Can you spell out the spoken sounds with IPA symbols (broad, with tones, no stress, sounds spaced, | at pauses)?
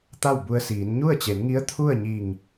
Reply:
t̪ a˥˨ w b u˧ ə̯ s iː˩˧ n ɲ u˥˨ ə̯ t͡ɕ e˩˧ n ŋ i˧˥ ə̯ t̪ʰ u˥˨ ə̯ ɲ i˧˩ ŋ